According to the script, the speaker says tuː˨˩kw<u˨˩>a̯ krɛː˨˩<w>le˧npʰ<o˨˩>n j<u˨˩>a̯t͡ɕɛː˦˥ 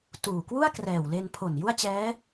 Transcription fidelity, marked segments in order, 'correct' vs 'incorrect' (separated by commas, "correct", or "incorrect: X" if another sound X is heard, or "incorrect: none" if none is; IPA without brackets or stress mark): incorrect: u˥˩, correct, correct, incorrect: u˥˩